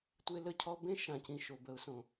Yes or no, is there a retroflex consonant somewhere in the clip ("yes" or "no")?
no